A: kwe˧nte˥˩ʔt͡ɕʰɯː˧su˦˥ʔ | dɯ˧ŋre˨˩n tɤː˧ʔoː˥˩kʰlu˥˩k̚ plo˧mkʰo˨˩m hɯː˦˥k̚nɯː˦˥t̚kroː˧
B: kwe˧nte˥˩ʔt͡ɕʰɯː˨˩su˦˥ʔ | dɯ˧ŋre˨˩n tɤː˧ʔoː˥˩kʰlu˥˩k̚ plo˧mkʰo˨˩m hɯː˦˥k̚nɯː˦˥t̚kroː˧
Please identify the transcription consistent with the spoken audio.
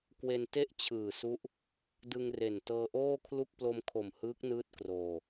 B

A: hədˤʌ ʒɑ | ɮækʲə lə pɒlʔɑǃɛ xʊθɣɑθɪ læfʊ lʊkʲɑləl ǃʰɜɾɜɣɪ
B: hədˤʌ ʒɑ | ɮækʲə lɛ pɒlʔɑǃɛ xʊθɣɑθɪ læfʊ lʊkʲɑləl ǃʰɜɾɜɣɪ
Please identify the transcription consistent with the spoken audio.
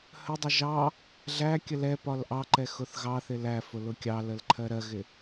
B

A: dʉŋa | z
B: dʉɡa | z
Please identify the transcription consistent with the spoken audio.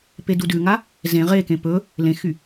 A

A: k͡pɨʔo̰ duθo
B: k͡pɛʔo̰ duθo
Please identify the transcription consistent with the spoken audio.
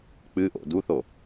A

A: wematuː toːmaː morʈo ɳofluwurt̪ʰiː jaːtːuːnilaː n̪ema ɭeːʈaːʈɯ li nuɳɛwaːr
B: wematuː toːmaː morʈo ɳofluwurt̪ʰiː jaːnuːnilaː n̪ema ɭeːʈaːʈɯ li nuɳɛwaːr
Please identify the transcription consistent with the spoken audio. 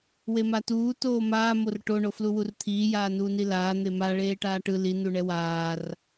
B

